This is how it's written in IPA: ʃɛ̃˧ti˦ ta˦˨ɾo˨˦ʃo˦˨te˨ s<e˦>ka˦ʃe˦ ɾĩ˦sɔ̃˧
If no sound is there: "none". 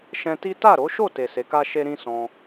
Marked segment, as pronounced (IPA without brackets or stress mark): e˨˦